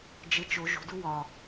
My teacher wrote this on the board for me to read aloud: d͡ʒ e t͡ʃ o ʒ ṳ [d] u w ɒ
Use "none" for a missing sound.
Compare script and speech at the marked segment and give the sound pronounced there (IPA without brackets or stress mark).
d